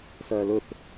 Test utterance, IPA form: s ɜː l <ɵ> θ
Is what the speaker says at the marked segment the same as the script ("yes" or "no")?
yes